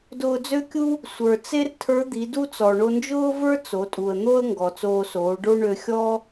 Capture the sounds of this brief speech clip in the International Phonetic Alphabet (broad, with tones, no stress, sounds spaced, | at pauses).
d ʊː˧ d͡z ø˥ kʲ u˥ | sʷ ə˞˩ t͡s e˥ r tʰ ə˞˧˥ d̪ i˩˧ d u˥ t͡s ɔ˩ ɳ o˧ n d͡ʒ ʊː˥ v ə˞˥ t͡s o˩˧ tʼ u˩ ə̯ n̪ o˥ ə̯ ŋ ɡ ɔ˩ t͡s oː˧ s oː˩˧ ɖ o˥ ɳ ø˧ xʲ ɔ˥